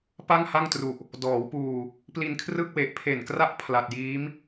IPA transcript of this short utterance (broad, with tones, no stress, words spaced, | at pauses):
pa˥˩ŋha˥˩ŋtru˨˩ʔ | dɔː˩˦wpuː˨˩ | pli˧nkʰrɯ˥˩k̚we˨˩ʔ pʰe˨˩nkra˦˥ʔ pʰla˨˩t̚jiː˦˥m